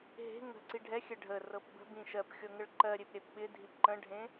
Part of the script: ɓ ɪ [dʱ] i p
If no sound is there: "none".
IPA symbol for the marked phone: dʱ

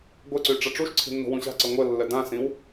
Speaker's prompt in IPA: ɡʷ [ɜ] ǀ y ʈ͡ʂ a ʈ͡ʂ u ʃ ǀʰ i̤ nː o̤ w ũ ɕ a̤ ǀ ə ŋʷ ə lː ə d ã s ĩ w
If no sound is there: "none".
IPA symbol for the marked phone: ɜ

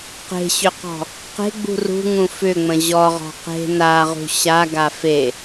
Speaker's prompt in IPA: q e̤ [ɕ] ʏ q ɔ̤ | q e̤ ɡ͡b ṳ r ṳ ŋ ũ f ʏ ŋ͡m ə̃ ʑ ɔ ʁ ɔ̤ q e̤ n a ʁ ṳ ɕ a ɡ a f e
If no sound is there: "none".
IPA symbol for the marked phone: ɕ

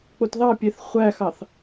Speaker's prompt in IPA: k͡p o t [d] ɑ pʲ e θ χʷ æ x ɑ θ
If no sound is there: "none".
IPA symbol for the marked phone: ð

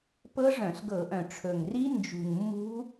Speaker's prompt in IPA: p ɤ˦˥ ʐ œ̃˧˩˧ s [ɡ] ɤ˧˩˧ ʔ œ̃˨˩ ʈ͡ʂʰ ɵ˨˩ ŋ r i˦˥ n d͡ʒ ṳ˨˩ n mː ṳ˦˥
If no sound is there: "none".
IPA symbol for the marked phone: ɡ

